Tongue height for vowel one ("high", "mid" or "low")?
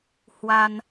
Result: low